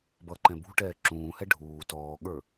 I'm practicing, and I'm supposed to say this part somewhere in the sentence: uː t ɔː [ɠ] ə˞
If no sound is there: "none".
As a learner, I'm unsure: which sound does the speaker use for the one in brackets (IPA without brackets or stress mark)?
ɠ